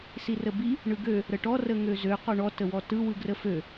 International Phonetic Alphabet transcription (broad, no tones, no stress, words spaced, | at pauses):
sirəbi | ɳɯɡø | ɾəʈɔ rəŋøzø qɔɳɔ təwɔtɯ wɯɡrəfø